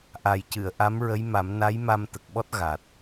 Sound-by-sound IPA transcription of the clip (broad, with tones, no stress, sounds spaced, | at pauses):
ʔ a˨˩ j c ɨ˨˩˨ ə̯ ʔ a˧˥ m ɹ ə˧˥ j m a˨˩˦ m n a˧˥ j m a˧ m t̪ ə˨˩ k̚ ɓ ɔ˦˥ t̚ ɣ a˨˩ t̚